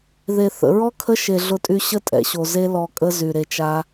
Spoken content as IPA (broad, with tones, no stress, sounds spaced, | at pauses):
ð e˨ θ ə̰˨ ɹ ɔ˦ kʰ ə˦ ʃ e˨ ɮ ʊ˧ tʼ y˧ ɕ ə˦ tʼ ɛ̰˨ ɕ o˨ z e˦ l ɔ˧ kʼ ə˦ z y˨ ɾ e˧ t͡ʃ a˦